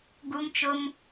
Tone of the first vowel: high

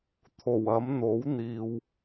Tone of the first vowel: low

